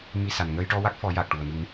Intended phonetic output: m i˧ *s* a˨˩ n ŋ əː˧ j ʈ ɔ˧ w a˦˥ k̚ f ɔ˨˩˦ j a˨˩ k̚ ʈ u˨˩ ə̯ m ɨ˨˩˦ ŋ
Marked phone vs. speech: correct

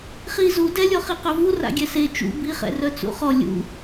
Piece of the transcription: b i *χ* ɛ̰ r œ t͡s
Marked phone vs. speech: correct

